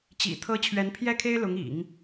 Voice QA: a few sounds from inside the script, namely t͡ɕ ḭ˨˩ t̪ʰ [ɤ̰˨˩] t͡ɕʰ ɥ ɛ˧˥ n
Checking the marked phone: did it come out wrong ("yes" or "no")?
yes